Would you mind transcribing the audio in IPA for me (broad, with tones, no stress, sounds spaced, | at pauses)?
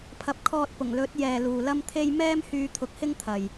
pʰ ɐ˨˥ p̚ kʰ ɔː˧ t̚ p ʊ˨˩ ŋ l ɵ˨˥ t̚ j ɛː˨ l uː˨ l ɐ˥ m t̪ʰ e˥ j m ɛː˥ m h yː˧ t̪ʰ ʊ˨˥ k̚ h ɪ˥ ŋ t̪ʰ ɐ˨ j